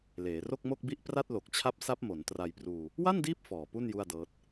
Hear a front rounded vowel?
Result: no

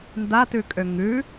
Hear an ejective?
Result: yes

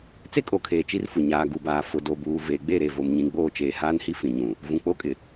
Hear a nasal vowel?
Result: yes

